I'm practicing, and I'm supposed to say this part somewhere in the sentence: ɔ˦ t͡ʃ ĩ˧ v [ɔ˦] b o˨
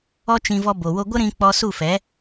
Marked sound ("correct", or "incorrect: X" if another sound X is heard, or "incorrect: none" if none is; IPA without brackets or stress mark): incorrect: ɔ˧